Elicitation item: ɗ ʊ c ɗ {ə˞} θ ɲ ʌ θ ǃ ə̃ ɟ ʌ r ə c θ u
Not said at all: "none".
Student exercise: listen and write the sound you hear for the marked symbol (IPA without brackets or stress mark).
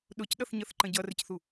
ʌ